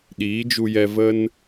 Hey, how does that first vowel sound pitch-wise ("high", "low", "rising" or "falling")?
rising